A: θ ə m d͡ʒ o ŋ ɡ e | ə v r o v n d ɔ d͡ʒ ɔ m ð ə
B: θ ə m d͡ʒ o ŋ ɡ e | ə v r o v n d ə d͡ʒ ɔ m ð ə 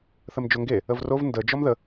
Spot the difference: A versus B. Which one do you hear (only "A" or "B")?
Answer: B